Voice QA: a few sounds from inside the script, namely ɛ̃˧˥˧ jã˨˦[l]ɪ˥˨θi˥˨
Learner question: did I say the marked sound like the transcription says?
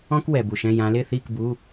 yes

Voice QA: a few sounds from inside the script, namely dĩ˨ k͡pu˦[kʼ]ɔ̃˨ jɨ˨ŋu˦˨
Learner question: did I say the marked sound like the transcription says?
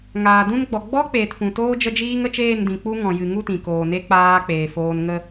no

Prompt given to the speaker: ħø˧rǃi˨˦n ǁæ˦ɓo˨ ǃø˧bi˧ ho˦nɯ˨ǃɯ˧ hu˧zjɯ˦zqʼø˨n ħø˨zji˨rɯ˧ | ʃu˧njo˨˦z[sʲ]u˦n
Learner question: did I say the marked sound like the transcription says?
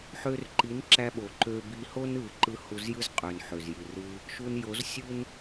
yes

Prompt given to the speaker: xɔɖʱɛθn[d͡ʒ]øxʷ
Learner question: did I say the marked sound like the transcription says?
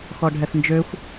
yes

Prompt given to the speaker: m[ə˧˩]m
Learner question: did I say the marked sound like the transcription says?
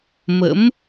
no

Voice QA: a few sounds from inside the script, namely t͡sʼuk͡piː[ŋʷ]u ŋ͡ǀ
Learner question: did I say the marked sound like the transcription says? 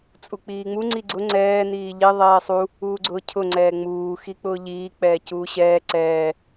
no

